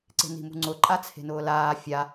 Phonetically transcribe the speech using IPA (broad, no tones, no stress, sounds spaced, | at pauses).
ǀ e̤ n i̤ m ṳ ŋ͡ǀ ʊ ǃʼ a t͡sʰ e̤ n ʊː l aː fʲ a